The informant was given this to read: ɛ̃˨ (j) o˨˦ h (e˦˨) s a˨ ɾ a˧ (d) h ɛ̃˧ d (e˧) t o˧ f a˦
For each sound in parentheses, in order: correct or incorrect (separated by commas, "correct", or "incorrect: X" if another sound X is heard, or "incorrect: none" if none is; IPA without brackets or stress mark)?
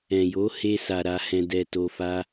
correct, incorrect: e˧, incorrect: none, incorrect: ɛ˧